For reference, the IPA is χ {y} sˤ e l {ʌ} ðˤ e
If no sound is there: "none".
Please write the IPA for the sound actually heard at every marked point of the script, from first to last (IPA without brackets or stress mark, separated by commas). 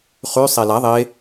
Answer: y, a